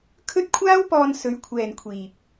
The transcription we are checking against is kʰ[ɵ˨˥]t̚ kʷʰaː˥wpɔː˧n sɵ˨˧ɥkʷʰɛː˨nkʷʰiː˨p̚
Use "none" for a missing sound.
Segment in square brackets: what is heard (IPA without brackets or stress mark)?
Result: ɵ˥